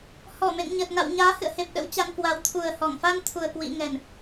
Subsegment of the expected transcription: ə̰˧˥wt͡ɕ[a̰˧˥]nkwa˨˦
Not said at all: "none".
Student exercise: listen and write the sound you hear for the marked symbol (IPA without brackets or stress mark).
a˧